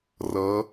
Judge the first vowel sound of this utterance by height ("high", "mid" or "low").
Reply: mid